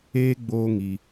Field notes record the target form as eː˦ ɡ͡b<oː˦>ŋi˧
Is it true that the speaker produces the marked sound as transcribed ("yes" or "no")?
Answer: yes